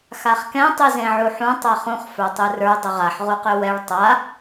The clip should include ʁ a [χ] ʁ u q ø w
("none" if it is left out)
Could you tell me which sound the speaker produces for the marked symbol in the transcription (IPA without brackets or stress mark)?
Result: ħ